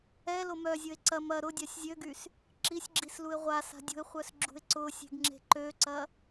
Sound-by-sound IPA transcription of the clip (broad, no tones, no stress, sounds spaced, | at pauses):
ɛ l o m œ zʲ ʊ e̯ ǀ ɐ m ɐ ɾ ʊ dʲ a sʲ zʲ ø ɡ y s | ǁ i sʲ ɡ͡ǁ i s l u e̯ ʁʷ a s a̤ dʲ ṳ e̯ χʷ œ s ɡ͡ǁ ṳ e̯ ǀ ʊ sʲ e̤ ɡ ŋ͡ǁ e̤ ǃ ø ǀ ɐ